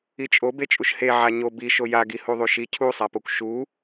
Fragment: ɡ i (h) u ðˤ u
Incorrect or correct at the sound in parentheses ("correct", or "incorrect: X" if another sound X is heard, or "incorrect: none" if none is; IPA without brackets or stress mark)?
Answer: correct